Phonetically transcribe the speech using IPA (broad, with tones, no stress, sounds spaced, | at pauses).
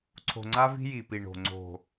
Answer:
ǀʰ o̤˨ ŋ͡ǀ a˧ v i̤˧ j i˨ p i˨ ɳ o̤˨ ŋ͡ǀ o̤˨